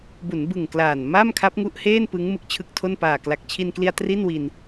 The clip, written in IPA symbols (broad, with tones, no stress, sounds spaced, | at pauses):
b u˩˦ n b ɯ˨˩ ŋ k l aː˨˩ n m a˥˩ m kʰ a˦˥ p̚ ŋ u˦˥ ʔ h eː˥˩ n p ɯ˦˥ ŋ m ɯ˦˥ k̚ t͡ɕʰ ɯ˦˥ k̚ tʰ o˥˩ n p aː˨˩ k l a˨˩ k̚ t͡ɕʰ i˧ n k l i˧ a̯ t r i˥˩ n w i˧ n